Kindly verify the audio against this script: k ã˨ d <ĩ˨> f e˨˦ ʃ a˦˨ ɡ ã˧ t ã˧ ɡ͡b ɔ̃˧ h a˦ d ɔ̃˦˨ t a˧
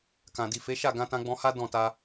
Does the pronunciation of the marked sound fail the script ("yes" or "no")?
yes